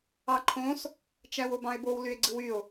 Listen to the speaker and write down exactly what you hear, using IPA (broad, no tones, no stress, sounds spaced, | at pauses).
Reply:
ɑ ǃʰ õ s | t͡ʃ æ w o b ɑ̃ e̯ b o w l y e̯ ɡ͡ǀ ɯ w y o̯